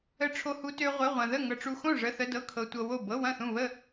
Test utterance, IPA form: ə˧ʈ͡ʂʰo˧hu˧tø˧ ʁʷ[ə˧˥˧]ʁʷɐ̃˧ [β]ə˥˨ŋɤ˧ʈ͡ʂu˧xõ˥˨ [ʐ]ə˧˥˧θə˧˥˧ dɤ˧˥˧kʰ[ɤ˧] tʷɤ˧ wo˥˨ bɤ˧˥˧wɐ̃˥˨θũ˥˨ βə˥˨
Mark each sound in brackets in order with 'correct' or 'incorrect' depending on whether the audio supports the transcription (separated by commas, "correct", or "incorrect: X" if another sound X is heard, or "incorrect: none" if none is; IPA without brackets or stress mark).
correct, incorrect: ð, correct, correct